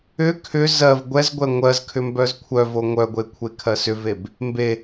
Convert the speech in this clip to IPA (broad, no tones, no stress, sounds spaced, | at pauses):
ʏ kʰ ʏ z ɜ v ɡʷ ɛ z ɡʷ ɛ ŋʷ ɜ z kʰ ʏ m b œ z kʷʰ œ v o ŋʷ œ ɡʷ e kʷʰ e kʰ ɜ s ʏ v e b | m b e